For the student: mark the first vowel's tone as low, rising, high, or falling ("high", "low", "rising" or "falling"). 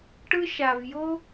high